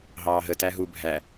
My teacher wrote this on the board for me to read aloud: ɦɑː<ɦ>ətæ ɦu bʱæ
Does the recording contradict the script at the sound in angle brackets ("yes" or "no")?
no